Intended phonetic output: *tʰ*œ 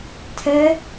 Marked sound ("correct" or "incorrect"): correct